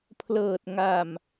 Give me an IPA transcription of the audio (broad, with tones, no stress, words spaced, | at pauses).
pʰlɤː˨˩t̚ŋa˨˩m